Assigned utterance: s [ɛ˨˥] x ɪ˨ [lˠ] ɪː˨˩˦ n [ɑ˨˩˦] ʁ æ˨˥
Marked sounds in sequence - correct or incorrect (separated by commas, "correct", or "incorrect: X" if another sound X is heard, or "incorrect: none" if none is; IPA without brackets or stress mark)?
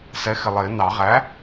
correct, correct, correct